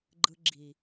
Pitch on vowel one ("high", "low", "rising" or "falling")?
high